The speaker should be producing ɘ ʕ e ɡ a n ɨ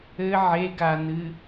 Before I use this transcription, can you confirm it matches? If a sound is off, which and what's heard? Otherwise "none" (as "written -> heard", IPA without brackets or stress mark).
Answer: none